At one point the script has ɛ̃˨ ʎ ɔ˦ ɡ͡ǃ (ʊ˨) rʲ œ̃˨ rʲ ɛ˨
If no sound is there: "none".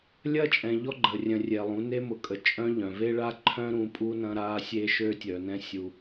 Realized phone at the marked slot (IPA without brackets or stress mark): ə˨